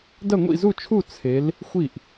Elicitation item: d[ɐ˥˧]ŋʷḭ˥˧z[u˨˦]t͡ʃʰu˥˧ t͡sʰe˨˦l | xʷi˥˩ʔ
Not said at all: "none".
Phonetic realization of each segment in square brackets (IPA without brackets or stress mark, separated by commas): ɐ˥˧, u˥˧